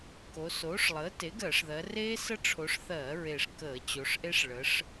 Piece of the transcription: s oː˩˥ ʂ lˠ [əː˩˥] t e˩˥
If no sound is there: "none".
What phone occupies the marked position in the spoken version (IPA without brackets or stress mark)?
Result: əː˩˥